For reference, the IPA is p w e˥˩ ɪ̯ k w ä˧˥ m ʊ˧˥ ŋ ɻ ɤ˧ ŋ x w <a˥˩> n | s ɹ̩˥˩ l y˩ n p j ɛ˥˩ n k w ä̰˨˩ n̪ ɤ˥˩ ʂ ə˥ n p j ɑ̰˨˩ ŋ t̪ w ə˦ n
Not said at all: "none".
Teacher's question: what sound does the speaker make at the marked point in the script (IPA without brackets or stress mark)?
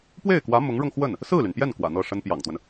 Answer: ə˥˩